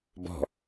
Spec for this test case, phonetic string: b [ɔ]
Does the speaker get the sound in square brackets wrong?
yes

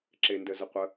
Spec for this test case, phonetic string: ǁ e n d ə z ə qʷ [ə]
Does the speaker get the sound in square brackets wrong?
no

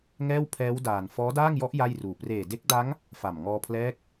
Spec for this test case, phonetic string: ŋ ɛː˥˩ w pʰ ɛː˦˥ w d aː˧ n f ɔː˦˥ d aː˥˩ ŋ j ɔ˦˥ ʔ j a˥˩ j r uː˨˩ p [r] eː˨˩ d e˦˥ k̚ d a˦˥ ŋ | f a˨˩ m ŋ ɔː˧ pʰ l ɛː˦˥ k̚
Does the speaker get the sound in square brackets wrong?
no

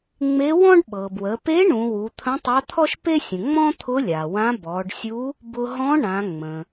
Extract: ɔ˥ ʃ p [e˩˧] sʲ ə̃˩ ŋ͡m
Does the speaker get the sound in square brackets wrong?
yes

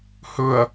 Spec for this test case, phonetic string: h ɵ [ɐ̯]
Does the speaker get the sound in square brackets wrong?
no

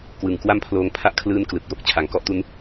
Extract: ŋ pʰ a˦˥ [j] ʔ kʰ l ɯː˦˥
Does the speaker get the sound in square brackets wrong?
yes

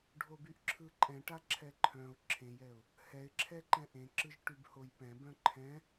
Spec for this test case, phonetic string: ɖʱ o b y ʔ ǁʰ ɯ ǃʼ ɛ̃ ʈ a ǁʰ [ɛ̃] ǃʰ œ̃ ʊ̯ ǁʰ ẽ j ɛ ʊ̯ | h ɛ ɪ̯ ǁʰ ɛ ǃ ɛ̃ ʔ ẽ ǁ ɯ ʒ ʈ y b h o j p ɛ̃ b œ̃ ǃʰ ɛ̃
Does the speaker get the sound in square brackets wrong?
yes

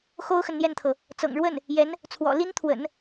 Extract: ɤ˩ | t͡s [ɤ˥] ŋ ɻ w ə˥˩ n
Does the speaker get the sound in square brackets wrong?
yes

